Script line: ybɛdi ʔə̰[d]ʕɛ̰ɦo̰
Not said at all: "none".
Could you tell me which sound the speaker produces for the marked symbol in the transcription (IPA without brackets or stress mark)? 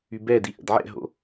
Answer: d